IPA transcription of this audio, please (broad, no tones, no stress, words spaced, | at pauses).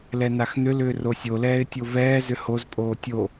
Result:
lɛnaxn̪ʏlʏː rosʲolɛːɪ̯ tʲovɛːzʏ hozpʼoː tʲo